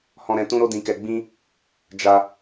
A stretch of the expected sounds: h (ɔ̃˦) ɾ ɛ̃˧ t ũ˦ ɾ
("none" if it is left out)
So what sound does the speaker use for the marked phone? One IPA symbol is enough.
ɔ̃˧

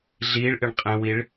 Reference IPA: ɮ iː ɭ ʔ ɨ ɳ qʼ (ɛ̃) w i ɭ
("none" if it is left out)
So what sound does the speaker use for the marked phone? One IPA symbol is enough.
ɛ̃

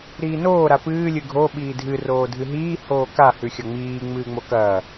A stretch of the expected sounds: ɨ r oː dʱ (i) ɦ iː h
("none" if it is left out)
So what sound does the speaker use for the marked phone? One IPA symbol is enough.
ɨ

